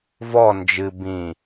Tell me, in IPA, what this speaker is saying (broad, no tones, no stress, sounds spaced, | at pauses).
v ɔ n d͡ʒ ɨ b ĩ